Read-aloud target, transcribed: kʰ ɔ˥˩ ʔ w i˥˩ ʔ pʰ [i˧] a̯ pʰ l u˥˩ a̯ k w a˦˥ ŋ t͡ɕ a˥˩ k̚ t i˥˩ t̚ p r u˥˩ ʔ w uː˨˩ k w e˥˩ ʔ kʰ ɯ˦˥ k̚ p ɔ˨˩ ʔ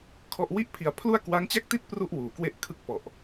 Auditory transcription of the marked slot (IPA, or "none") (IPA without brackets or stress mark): i˧